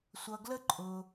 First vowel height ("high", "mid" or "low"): mid